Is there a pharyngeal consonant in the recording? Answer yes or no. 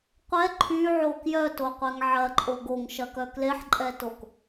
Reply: yes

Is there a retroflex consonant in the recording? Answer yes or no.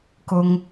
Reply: no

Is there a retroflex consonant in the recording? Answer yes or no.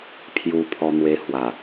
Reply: no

